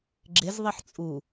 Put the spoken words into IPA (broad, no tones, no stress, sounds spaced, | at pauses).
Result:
ɡ͡ǁ ɪ z ðˤ i ħ t͡sʼ u